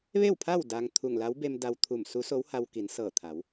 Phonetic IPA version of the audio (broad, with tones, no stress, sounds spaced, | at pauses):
ʋ e˥˨ w pʰ a˥˨ w d aː˧ ŋ t̪ʰ u˧˩ ŋ l a˧˥ w b e˧ m d a˧ w t̪ʰ u˧˩ m s u˧˥ s o˧˥ w h a˧ w k i˩˧ n s ɤː˧˩ t̪ʰ a˩˧ w